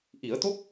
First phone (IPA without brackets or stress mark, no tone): ʔ